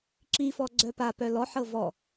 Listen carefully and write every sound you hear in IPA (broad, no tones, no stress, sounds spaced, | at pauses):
ǁ i f ɔ ɡ͡ǀ œ p a p œ l ɔ ħ ɤ v ɔ